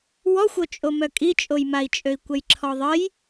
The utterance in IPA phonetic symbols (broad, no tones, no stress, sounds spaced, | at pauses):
w ɔ xʷ o t͡ʃʼ o m œ kʼ i t͡ʃʼ o j m a i̯ t͡ʃʼ ø i̯ kʷ ə j ǁʰ ɔ ðˤ ə j